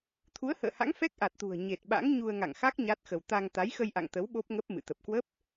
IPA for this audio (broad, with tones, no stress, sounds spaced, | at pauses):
t̪ʰ u˨˦ ə̯ h ə̰ː˧˨ h a̰˧˥ ŋ f ɛ˦˥ k̚ ʔ a˨˩ t̚ t̪ ṳ˨˩ ə̯ ɲ e˨˩ t̚ ɓ a̰˧˥ ŋ ɲ u˧ ə̯ ŋ a̰˧˨ ŋ x a˦˥ k̚ ɲ a˦˥ t̚ x ə˧ w t̪ a˧ ŋ t̪ a˨˦ j x ə˧ j ʔ a̰˧˨ ŋ t̪ ə˨˦ w ɓ o˦˥ p̚ ŋ ə˦˥ p̚ m ɨ̰˧˨ t̪ ə˨˩ p̚ k w ə˦˥ p̚